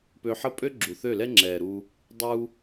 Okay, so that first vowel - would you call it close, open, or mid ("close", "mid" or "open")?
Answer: mid